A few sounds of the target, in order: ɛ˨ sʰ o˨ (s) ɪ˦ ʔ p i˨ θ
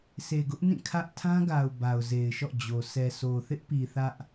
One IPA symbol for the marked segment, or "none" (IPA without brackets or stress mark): θ